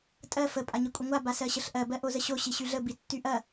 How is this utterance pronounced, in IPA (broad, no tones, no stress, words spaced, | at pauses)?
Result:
tʼɜ fə pʼaɲikʷʼəŋʷa basɜɕəɬʔɜ bɜʔozəɕo ɕiɕyɮə bitːyʔɐ